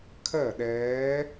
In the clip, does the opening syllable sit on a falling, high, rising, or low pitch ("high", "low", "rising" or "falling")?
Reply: falling